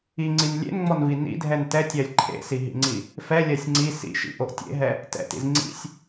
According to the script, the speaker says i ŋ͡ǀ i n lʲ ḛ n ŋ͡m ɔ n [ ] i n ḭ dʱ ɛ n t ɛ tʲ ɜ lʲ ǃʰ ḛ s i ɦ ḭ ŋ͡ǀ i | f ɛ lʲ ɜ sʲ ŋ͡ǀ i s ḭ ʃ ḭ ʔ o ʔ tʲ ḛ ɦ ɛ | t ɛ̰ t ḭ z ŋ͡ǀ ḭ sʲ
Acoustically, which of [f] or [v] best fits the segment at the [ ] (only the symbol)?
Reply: v